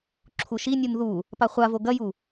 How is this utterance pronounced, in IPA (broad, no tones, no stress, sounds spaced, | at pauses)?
ǁʰ u ʃ i nʲ u n ð u | p a χʷ a v o ɡ ɐ j u